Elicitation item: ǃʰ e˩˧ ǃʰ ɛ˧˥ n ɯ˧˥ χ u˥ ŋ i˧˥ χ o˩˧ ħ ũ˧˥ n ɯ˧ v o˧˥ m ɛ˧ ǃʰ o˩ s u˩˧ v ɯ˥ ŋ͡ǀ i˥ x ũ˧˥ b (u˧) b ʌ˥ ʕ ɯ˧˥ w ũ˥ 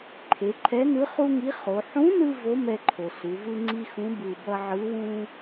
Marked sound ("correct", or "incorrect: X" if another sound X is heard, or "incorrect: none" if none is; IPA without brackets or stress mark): incorrect: ɯ˧